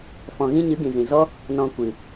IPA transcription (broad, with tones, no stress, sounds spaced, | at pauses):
f ɔ̃˨ ɣ ĩ˧ ɲ ɨ˨˦ ɡ ĩ˨ z ĩ˨ z ɔ˦ | n ɔ̃˧ kʷ ɨ˨